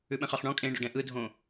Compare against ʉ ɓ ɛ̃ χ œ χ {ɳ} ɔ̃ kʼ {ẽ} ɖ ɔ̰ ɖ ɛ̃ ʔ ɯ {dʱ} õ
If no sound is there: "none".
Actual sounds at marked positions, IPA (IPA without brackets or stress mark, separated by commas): ɳ, ẽ, dʱ